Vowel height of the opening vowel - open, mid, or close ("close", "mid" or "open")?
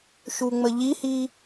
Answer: close